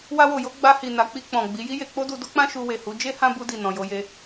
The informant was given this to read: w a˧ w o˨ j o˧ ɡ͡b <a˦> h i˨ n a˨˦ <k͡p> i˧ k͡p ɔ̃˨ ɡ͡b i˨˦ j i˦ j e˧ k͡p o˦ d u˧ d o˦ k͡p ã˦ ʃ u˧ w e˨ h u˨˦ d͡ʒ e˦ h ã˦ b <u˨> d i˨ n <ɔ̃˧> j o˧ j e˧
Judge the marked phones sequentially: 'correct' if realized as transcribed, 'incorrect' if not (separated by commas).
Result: incorrect, correct, incorrect, incorrect